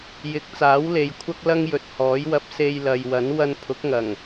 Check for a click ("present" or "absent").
absent